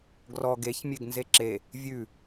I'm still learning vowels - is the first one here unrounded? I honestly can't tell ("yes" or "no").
no